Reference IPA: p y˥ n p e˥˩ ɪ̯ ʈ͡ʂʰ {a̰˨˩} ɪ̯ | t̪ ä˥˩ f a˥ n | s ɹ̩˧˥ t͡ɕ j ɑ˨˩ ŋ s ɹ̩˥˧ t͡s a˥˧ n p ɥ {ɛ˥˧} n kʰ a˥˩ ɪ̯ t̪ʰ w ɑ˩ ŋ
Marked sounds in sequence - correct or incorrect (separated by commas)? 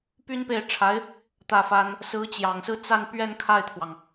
incorrect, correct